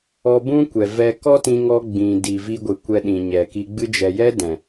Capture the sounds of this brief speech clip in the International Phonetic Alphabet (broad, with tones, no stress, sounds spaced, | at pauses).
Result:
ɔ˧ b ũ˦ kʷ ɛ˨ v ɛ˧ k ɔ˦ t ĩ˧ ŋ ɔ˧ ɡ͡b ĩ˨ d i˨ v i˧ ɡʷ ɨ˨ kʷ ɛ˧ ɗ ĩ˨ ɲ ɛ˨ k i˧ ɡ͡b ɨ˧ d͡ʒ ɛ˨ j ɛ˦ d ɛ̃˨